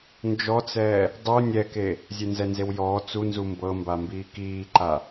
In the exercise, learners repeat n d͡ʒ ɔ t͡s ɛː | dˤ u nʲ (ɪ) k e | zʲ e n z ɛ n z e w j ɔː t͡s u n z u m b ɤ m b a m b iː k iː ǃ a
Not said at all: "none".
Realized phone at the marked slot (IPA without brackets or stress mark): ɛ